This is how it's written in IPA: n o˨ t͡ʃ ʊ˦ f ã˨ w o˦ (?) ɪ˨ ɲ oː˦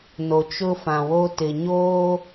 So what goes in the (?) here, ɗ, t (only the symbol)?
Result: t